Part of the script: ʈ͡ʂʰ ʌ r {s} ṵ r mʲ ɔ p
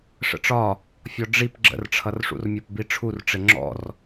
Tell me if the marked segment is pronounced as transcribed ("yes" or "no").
no